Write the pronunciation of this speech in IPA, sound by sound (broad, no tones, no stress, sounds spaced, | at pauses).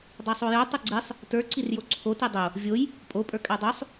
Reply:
dˤ a sˤ o j o tˤ o ɡ͡ǀ i sˤ | t ə˞ ǀ i r j o ǀʰ o t i dˤ o | vʲ o j | pʼ o pʼ ə˞ kʼ a dˤ o sˤ